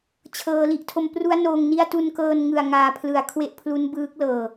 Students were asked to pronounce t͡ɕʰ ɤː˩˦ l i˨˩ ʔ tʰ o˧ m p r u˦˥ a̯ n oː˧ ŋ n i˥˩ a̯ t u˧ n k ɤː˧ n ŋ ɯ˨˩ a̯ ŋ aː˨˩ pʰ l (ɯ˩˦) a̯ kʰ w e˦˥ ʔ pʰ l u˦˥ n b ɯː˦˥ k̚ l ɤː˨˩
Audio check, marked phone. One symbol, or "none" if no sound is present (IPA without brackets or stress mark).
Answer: ɯ˩˦